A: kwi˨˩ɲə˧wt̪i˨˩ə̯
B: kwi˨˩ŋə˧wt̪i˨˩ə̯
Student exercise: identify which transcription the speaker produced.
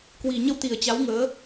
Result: A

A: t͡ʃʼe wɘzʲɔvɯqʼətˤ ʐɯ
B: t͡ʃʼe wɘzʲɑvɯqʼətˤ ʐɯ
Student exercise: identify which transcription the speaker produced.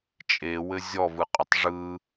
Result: A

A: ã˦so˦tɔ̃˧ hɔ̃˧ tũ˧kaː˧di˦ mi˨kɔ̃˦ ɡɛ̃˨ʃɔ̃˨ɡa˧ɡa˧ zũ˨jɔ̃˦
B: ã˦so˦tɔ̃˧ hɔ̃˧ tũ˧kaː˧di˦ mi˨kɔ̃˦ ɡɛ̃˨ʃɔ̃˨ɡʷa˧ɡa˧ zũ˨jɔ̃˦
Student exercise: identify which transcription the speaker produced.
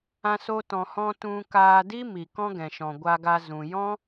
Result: B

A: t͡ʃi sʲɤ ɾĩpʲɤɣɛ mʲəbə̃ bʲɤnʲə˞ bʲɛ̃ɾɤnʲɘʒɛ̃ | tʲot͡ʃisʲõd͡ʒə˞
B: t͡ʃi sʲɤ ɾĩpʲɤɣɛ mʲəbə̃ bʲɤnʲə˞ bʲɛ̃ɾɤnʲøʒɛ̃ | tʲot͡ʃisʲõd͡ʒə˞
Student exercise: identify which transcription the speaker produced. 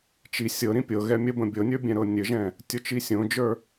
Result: A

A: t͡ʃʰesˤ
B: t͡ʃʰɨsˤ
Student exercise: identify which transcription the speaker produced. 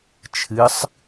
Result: B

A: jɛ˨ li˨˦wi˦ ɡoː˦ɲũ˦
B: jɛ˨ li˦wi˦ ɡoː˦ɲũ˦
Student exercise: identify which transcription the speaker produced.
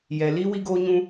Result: B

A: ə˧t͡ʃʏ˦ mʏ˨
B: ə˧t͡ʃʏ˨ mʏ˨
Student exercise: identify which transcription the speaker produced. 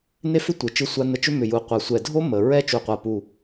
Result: A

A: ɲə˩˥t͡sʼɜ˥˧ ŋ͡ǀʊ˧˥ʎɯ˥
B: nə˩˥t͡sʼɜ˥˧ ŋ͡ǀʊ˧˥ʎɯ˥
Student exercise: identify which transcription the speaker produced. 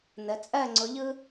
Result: B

